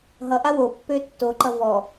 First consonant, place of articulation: glottal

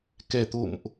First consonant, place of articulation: velar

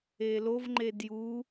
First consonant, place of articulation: alveolar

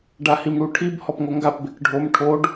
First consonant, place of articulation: retroflex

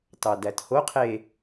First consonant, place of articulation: alveolar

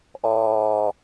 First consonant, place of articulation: glottal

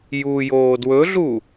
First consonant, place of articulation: palatal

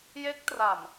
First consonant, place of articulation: palatal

